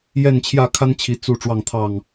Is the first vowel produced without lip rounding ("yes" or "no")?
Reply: yes